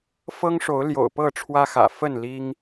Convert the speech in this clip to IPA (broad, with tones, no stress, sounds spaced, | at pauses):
f ɤ˦ ŋ ʂ o˨˦ ʊ̯ l j o̰˨˩ ʊ̯ p ɤ˥˨ ʈ͡ʂʰ w ä˦ x ä̰˨˩ f ə˥˨ n l i˦ ŋ